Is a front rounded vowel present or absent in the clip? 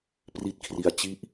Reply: absent